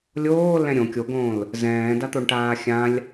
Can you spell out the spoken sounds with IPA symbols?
lʲ oː l ɛ̃ ɾʲ õ kʲ o ɡ õː l | z ɛ̃ː d a t̪ o ɳ ʈ aː xʲ ã lʲ

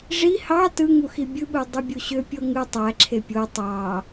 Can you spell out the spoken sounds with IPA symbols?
ʐ i h ɑ t ɯ ŋ u x i bʲ ɯ ɓ u dˤ ɯ bʲ u ɕ ø pʲ o ŋ ɯ tˤ æ ǁʰ e pʲ o tˤ ɑ

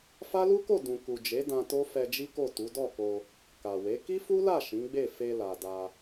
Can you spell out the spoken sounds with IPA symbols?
f a˦ l u˦ k o˦˨ d ũ˨ k u˨ d͡ʒ e˨˦ d ã˧ t o˦ f ɛ˧ d͡ʒ i˦ k o˦˨ t u˨˦ d ɔ˦˨ k o˧ | k a˨ w e˨˦ k i˦ f u˦ l a˦˨ ʃ ĩ˨˦ ɡ͡b e˦˨ f e˧ l a˨ d a˧

